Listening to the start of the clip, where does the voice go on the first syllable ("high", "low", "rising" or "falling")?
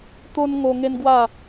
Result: high